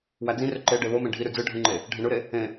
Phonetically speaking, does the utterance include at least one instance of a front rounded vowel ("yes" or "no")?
yes